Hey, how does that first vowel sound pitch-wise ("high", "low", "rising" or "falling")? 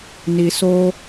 low